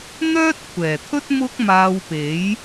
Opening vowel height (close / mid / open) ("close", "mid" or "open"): mid